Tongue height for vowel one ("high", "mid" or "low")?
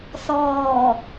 mid